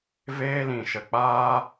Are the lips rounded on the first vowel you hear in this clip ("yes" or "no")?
no